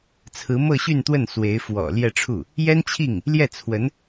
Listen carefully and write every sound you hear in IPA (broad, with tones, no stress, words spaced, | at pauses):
t͡sʰɹ̩˧˥mɤ˥˧ɕy˥˧nt̪wə˥˩n swe˧˥ɪ̯ fwɔ̰˨˩ ljɛ˥˧ʈ͡ʂʰu˥˩ | jɛ˥nt͡ɕʰi˥˩ŋ | ljɛ˥˩ t͡sʰwə˧˥n